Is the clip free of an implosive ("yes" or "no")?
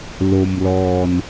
yes